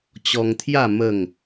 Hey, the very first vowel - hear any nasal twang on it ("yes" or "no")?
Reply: no